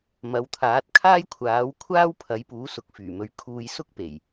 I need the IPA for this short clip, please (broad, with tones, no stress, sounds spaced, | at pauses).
m ɐ˨˧ w t̪ʰ aː˨˥ t̚ kʰ aː˥ j kʷʰ aː˨˥ w kʷʰ aː˥ w pʰ ɐ˨˥ j p uː˨˥ s ʊ˨˥ k̚ f yː˨˩ m ɵ˨ ɥ kʰ uː˧ j s ʊ˥ k̚ p e˨˩ j